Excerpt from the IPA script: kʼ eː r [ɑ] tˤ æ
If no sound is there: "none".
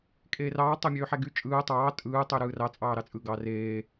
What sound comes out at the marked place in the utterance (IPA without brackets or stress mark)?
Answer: ɑː